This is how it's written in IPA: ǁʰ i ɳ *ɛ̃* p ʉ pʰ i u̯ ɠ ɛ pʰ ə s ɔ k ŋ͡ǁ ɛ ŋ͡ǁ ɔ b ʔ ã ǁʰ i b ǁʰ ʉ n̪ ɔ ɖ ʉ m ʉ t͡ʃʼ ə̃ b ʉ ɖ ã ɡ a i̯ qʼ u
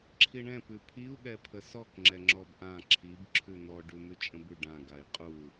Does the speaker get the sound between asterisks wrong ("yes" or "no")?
no